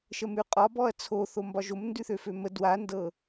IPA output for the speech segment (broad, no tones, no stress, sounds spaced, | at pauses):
ʃ ə m ʉ qʼ ɒ b ɔ ɐ̯ t͡sʰ o θ o m b ɒ ʒ o m n d ʉ θ ø f ø m ə d w a n d ɤ